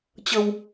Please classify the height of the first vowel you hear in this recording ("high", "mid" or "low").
mid